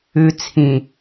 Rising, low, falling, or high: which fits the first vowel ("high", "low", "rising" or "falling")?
low